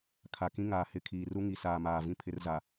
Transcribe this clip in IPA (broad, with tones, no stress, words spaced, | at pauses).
kʰa˨kĩ˦ ŋaː˨hɪ˦˨ kʰiː˨ru˦ ŋi˨saː˨ maː˨vĩ˦ pʰɪ˦rza˨